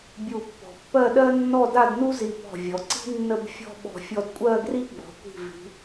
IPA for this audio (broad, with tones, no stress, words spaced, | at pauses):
bʲu˥˧pːɔ̤˧ pːɜ˥˧ɗɜ˥nːɔ˥˧da˥˧d nu˥zi˧˩pɔ̤˧˩ vʲɔ˩˧ ǀi̤˥ nːə˥˧b fʲɔ̤˥˧ɓɔ̤˧˩ fʲɔ˧dkʷʼɜ˥˧ɡri˥ ɡ͡bɔ̤˩˧kʷi̤˧˩vi̤˩˧